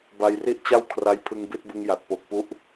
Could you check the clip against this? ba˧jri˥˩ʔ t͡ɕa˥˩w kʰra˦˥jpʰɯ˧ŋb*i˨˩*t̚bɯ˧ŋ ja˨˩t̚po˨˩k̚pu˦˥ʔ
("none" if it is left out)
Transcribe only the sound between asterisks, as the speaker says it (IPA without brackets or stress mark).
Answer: i˥˩